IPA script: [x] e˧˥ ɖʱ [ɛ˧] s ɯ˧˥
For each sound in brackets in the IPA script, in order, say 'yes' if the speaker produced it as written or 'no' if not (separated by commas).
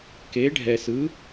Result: no, yes